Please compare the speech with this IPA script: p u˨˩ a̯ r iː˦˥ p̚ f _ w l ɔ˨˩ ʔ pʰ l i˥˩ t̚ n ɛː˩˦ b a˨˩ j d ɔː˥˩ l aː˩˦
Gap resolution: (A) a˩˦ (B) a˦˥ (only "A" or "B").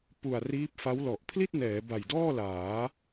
B